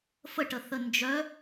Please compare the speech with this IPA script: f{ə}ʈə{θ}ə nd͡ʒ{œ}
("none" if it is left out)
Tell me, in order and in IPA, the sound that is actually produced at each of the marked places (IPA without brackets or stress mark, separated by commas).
ə, θ, œ